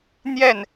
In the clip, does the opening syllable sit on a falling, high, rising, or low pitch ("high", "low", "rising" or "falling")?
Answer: falling